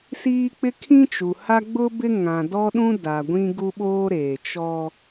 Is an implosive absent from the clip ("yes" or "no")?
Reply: no